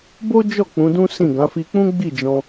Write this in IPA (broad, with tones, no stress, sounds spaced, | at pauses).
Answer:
b o˦ d͡ʒ ɔ˦˨ k͡p ũ˨˦ d ũ˦ s ĩ˦˨ ɡ ã˨˦ f i˧ k͡p ũ˦ ɡ͡b i˦˨ d͡ʒ ɔ̃˧